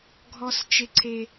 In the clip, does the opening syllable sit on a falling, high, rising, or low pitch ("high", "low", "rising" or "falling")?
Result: high